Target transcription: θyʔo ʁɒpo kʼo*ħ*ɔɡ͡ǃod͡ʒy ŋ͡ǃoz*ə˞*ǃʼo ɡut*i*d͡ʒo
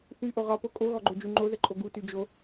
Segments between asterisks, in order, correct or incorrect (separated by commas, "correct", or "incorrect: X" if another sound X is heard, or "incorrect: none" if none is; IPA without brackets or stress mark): incorrect: ɣ, incorrect: ə, incorrect: y